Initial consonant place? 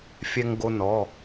labial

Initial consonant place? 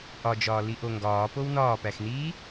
glottal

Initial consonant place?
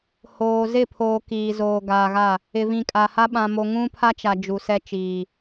glottal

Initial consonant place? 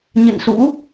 palatal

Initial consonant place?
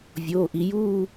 labial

